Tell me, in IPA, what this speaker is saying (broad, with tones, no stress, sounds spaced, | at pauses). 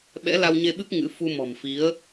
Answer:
ɓ ɛ̰˧˥ l a˧ w ɲ e˧ ɓ ɨ˦˥ p̚ ŋ ɨ̰˧˥ f u˧ m ɔ̤˨˩ m f i˨˦ ə̯